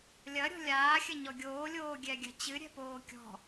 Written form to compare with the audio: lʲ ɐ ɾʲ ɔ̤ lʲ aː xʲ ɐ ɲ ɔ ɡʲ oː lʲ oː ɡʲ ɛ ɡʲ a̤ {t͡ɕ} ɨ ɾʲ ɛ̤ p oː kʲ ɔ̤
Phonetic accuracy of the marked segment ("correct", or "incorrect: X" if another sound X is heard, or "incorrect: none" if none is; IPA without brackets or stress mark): correct